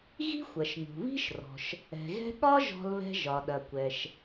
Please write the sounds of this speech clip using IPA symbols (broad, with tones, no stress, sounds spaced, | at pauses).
ɣ i̤˥ xʷ ɐ˩ ʃ ŋ ṳ˩ β i̤˥ ʃ r ɔ̤˩ ʃ | ɛ̤˩ ɣ ɛ̤˥ ɠ ɒ˥ ʒ ɔ̤˥ l β ɛ̤˥ ʒ ɒ˩ ɗ ɐ˩ kʷ ɛ˩ ʃ